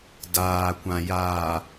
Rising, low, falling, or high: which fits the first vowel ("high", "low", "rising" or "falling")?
low